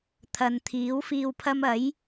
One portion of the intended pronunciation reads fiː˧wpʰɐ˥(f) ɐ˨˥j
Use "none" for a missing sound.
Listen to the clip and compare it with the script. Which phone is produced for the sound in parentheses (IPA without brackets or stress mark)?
m